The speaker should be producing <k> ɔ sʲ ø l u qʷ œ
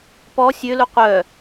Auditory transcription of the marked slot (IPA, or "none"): p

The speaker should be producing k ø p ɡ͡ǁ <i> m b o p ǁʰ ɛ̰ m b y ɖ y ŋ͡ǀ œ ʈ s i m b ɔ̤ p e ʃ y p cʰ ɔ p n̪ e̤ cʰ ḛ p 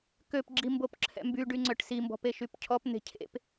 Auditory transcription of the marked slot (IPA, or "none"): i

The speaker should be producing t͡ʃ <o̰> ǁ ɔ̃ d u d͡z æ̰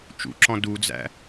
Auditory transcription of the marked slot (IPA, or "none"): ṵ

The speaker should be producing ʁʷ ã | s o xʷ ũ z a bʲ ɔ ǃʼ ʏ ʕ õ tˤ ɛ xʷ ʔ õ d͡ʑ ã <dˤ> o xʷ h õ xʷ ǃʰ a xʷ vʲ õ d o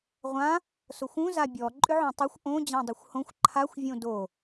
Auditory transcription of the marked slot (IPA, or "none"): dˤ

